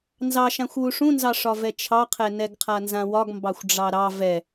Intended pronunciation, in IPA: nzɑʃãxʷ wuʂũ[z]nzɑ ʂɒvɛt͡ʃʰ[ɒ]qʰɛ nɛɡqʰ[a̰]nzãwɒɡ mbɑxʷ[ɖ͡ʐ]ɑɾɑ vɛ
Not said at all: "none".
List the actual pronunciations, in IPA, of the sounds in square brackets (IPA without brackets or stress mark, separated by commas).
none, ɑ, a, ɖ͡ʐ